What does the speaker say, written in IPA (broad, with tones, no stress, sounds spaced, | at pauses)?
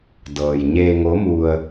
d ɤː˩ j ɲ eː˧ ŋ o˧˥ m u˧ ə̯